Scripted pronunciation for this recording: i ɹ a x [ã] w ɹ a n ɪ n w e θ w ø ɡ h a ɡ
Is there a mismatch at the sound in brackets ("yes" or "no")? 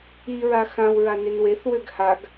no